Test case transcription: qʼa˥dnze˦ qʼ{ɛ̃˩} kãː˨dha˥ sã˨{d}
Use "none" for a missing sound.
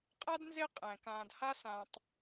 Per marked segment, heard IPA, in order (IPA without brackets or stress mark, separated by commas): ɛ̃˩, tˤ